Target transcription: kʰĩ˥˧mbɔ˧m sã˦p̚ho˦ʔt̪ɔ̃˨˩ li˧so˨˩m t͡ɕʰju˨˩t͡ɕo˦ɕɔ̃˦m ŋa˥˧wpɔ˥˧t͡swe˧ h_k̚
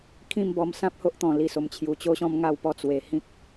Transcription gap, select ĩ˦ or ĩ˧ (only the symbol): ĩ˦